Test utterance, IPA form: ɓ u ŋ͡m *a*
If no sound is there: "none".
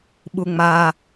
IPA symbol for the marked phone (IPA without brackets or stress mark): a